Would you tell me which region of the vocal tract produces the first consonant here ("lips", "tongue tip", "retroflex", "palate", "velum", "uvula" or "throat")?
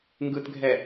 velum